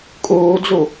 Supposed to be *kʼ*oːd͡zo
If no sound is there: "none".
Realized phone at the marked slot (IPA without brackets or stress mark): kʼ